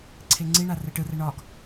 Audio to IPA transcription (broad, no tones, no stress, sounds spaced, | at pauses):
ǀʰ e ŋ͡ǀ i ɳ a r ɛ ʈ ɯ r ɛ ɳ ɒ ɡ